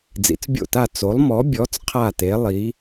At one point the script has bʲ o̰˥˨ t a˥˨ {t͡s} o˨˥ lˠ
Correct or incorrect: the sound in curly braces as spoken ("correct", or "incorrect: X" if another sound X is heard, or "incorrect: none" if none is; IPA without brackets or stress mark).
correct